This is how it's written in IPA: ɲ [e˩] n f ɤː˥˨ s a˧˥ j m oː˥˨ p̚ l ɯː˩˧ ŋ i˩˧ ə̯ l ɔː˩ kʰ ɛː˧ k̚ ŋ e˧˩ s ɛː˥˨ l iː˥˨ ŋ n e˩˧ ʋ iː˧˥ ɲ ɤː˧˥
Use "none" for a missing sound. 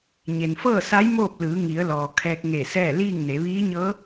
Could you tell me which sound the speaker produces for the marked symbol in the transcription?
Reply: e˩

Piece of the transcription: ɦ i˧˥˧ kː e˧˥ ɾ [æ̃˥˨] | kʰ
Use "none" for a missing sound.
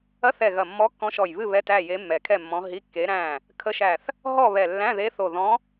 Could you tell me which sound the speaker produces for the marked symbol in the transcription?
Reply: æ̃˥˨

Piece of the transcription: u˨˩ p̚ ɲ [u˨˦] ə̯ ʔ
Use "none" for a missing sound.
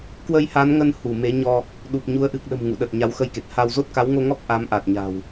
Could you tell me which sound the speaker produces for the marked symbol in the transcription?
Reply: u˨˦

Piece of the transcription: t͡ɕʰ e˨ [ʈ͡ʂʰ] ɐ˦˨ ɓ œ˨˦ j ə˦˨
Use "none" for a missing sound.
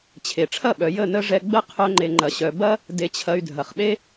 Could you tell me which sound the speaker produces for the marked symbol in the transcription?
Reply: ʈ͡ʂʰ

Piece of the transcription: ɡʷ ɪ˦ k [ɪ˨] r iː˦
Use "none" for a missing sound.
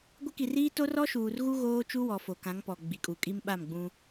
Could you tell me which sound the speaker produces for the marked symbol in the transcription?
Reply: i˨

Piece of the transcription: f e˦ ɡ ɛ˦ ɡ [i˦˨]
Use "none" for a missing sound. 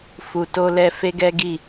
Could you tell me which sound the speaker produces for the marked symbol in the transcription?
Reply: i˦˨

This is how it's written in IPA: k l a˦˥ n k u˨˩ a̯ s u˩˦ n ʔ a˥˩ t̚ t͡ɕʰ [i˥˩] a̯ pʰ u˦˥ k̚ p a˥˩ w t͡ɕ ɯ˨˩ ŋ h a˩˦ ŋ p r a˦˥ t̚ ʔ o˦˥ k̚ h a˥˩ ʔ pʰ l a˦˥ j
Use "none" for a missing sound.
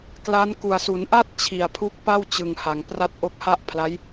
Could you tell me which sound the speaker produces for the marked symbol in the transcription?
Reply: i˨˩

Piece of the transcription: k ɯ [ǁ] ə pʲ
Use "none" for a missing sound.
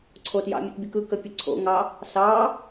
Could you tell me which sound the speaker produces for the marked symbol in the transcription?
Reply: k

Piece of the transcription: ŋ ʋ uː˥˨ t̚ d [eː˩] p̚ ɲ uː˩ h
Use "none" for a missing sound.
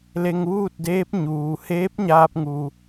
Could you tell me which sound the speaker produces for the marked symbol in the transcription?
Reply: eː˧˥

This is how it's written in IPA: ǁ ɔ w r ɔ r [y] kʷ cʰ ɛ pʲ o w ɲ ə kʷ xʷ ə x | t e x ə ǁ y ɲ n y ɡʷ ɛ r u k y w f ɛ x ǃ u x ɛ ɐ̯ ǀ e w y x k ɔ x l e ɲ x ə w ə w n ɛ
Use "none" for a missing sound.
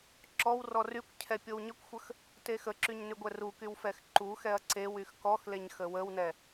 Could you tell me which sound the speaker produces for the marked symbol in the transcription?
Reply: y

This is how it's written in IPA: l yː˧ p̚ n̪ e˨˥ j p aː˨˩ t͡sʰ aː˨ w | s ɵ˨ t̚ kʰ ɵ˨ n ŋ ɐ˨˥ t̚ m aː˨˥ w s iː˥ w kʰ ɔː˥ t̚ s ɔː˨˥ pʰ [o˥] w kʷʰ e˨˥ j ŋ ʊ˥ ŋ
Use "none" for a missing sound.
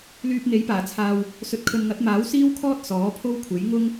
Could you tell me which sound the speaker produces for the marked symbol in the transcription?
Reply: o˥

